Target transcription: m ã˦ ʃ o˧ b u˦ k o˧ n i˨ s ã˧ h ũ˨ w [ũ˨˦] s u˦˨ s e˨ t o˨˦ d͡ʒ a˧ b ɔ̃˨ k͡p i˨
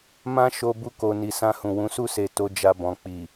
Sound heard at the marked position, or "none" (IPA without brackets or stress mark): ũ˨˦